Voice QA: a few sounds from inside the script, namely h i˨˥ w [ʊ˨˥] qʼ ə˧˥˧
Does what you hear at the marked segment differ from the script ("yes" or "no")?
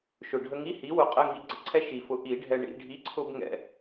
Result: no